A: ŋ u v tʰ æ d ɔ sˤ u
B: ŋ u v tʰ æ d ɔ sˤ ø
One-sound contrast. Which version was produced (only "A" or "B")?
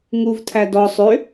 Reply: B